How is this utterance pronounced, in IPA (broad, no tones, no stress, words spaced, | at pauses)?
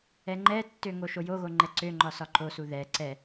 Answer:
ɛŋ͡ǃɛtːø ŋoʃojoɣo ŋ͡ǃɛǀøŋ͡ǃɒ sɒǃosu ðɛ ǀɛ